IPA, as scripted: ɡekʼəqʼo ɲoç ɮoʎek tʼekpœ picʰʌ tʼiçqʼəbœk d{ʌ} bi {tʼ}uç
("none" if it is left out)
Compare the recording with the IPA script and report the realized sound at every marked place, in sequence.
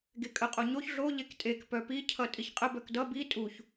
ʌ, tʼ

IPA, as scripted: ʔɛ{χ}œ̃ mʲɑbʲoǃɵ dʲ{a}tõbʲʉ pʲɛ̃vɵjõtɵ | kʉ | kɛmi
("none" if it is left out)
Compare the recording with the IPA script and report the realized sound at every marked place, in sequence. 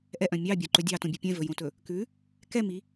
ʔ, ɑ

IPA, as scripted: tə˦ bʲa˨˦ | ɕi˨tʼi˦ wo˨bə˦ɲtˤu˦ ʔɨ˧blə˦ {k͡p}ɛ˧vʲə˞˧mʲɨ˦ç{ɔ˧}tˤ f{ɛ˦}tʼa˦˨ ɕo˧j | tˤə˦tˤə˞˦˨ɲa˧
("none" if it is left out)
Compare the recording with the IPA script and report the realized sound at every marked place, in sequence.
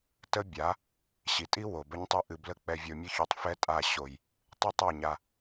k͡p, o˧, ɛ˦

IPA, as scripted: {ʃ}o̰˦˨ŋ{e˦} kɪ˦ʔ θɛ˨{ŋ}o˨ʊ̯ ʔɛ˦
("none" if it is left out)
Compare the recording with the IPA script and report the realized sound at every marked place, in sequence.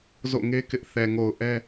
z, e˦, ŋ

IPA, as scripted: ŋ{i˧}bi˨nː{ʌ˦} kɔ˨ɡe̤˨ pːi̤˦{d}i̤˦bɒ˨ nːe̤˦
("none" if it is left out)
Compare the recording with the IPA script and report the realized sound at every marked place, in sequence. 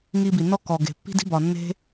i˧, ɔ˦, d

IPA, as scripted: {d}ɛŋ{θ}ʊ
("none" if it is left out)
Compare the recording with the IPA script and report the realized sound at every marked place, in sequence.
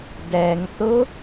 d, θ

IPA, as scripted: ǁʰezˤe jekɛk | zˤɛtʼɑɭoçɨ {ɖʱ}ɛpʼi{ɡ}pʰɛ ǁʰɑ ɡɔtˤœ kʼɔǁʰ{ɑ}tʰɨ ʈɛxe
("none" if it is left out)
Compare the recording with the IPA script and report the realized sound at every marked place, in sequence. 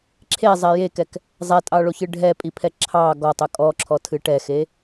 ɖʱ, none, ɔ

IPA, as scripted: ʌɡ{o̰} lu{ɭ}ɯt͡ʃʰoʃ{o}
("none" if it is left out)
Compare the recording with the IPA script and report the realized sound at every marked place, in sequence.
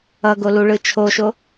o, ɭ, o

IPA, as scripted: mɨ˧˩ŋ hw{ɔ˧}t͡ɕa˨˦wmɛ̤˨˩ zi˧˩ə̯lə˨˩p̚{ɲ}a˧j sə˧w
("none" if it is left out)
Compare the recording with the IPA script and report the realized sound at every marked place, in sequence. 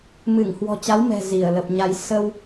ɔ̤˨˩, ɲ

